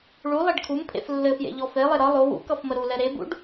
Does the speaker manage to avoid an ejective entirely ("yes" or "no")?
yes